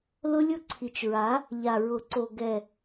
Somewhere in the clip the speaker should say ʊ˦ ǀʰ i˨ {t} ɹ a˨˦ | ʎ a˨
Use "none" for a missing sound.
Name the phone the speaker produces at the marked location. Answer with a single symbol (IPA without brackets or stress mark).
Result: t͡ʃ